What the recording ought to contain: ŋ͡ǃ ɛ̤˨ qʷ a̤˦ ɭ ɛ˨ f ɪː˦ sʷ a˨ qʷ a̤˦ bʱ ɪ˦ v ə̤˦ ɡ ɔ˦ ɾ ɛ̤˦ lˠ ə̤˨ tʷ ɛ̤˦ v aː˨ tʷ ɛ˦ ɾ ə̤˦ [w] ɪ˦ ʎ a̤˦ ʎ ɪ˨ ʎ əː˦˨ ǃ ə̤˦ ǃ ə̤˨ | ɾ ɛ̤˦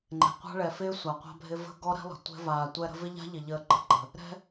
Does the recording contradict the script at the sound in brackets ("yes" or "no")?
yes